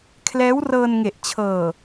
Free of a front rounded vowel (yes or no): yes